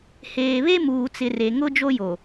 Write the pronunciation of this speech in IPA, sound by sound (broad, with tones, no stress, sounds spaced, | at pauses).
h eː˨ β e˦ m uː˨ t͡s ɪ˨ r e˨ ŋ ʊ˦ d͡ʒ o˦ j o˨